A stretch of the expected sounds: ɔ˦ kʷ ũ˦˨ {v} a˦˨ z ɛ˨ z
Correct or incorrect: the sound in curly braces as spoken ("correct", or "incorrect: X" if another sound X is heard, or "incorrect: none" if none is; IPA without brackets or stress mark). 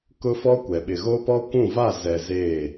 correct